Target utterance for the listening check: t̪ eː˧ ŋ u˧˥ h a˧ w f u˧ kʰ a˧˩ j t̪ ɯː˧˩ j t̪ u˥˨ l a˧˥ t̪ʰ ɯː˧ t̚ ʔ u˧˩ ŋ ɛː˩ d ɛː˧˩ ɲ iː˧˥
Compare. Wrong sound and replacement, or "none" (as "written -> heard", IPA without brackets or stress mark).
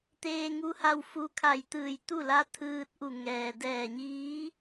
none